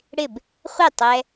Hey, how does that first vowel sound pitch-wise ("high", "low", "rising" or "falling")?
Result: falling